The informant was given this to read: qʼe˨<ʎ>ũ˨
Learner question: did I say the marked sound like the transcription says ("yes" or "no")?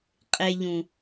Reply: yes